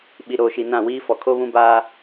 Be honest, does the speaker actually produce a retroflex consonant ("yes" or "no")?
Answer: no